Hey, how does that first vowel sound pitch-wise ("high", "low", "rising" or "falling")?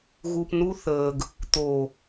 low